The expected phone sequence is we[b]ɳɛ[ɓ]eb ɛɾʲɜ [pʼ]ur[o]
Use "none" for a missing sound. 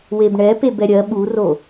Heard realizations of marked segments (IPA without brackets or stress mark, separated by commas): b, p, ɓ, o